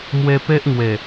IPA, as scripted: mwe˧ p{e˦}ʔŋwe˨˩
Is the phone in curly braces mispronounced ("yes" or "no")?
no